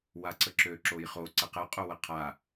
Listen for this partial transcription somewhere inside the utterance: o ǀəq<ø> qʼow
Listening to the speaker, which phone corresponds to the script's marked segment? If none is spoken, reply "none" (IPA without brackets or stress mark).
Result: ə